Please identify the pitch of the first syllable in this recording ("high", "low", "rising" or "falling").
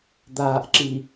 low